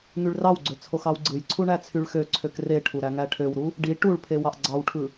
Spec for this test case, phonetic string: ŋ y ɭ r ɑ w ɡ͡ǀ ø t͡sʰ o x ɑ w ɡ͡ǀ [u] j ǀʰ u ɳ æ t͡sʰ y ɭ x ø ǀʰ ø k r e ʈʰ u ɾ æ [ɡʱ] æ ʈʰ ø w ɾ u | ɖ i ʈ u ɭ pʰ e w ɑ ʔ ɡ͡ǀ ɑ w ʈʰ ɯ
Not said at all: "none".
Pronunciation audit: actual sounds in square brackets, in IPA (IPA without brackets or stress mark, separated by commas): ɯ, ŋ